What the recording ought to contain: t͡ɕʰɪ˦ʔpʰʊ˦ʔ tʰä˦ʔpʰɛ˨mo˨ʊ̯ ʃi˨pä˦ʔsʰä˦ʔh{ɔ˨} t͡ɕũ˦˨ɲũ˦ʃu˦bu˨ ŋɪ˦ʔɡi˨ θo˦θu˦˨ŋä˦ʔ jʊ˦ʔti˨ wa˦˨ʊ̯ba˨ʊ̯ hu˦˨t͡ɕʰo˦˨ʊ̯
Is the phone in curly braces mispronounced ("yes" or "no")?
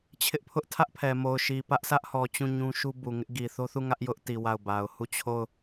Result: no